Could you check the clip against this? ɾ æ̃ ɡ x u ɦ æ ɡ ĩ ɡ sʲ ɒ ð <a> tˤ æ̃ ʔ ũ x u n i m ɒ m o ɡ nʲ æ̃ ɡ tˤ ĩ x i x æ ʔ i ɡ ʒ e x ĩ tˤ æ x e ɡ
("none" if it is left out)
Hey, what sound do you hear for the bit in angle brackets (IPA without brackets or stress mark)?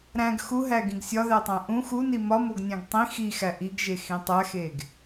æ